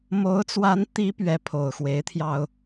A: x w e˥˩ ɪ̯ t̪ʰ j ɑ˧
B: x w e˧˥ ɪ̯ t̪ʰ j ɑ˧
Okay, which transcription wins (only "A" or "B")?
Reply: B